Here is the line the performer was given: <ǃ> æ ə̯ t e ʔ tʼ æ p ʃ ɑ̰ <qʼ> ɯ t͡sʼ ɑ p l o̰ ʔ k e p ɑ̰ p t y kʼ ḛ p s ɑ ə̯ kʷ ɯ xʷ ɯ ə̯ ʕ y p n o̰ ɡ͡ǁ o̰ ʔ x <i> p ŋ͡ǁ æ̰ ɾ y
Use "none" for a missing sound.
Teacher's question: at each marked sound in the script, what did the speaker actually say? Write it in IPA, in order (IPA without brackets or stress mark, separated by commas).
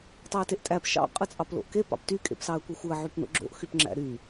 tˤ, qʼ, y